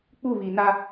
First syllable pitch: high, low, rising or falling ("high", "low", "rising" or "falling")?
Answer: falling